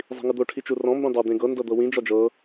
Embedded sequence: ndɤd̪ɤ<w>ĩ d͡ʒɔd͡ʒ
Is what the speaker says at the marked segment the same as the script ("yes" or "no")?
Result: yes